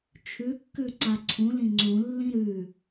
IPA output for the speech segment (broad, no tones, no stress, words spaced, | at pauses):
t͡ʃʰʉkːʉ ǀaǀʰũlĩ ŋ͡ǀũlːĩ ɾʉ